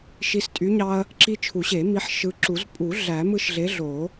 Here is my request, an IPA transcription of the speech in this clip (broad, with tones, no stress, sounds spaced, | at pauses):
ʃ i˨˥ s tʼ y˨˥ ɲ ɑ˦ ɐ̯ | ǁ i˦ t͡ʃʰ u˨˩˦ ɕ e˨˩˦ m i˨˥ ħ ʃ ɯ˨˥ ǁ u˨˩˦ z pʼ u˨˩˦ ɮ æ˨˩˦ m ɯ˦ ʃ ɮ e˨˥ ɮ o˨˩˦